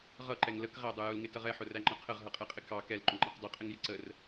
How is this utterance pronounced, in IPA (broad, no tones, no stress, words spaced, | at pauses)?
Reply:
ʁʌǃɛŋ ləkʁædˤʊ jʊlŋɪtʌʁ ɛħʊræŋ͡ǃʌ qʰəʁɦʌqʼɛqʼɪ kɑ kɛlǃʊŋ͡ǃɑq dˤʊqʼɪŋjɪ ǀər